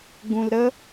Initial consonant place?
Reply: velar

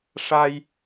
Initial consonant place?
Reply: retroflex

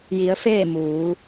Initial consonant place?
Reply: palatal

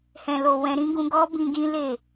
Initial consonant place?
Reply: glottal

